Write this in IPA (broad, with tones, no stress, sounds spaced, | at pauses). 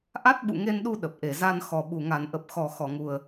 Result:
ʔ a˦˥ t̚ ɓ ṵ˧˨ ŋ e˧ n ɗ u˧ ɗ ə˨˩ p̚ ʔ e˧˩ z a˧ n x ɔ˨˩ ɓ u˨˩ ŋ a˨˩ n ʔ ə˨˩ p̚ x ɔ˨˩ x ɔ˧˩ ŋ u˨˩ ə̯